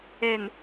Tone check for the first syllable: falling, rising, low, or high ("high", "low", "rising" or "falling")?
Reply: low